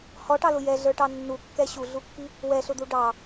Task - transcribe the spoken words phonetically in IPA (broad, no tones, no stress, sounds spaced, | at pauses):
h ɔ ʈ ɑ l ʊ j ɛ ɮ ə˞ ʈ ɑ nː u kː ɛ ɕ u ɮ u kː i | w ɛ ɬ ʊ d̪ u ɖ ɑ